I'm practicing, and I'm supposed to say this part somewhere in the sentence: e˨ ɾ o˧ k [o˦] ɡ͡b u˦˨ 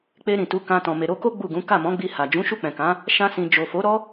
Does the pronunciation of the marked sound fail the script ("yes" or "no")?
no